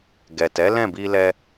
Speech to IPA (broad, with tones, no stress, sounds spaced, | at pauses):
ɡ ɛ˨ t ɛ˨˦ l ɛ̃˦˨ b i˧ l ɛ˧